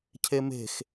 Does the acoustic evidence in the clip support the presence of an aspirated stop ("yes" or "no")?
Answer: yes